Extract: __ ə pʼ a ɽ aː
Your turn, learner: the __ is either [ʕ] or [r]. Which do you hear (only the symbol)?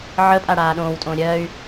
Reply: ʕ